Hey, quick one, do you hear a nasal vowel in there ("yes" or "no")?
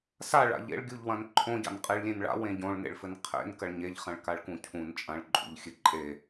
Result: yes